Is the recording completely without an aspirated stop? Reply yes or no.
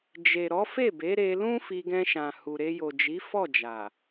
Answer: yes